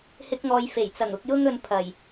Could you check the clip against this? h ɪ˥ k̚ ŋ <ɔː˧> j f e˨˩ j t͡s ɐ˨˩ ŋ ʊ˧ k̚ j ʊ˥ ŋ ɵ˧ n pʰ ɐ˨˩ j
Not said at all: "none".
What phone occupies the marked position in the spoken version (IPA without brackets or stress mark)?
ɔː˧